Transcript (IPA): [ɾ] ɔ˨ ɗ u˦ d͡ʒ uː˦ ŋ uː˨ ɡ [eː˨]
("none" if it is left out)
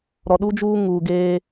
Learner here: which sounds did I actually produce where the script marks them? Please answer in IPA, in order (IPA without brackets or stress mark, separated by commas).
ɾ, eː˦